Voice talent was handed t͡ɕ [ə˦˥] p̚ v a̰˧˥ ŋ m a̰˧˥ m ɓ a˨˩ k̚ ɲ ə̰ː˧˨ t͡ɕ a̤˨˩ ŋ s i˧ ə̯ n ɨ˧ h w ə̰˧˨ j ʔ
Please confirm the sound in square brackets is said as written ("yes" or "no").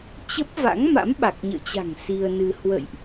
yes